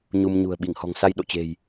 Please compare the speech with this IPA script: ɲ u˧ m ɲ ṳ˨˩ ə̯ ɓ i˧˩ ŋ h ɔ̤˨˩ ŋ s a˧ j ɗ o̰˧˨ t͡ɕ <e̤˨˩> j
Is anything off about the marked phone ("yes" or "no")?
no